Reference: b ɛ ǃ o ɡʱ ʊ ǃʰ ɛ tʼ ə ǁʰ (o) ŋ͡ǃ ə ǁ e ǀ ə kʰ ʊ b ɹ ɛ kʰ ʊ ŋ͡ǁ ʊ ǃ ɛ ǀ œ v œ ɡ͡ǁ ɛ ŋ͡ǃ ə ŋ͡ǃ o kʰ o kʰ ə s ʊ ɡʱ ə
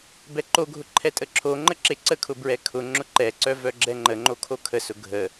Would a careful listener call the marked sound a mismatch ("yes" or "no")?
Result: no